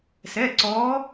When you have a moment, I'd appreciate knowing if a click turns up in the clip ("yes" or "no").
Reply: yes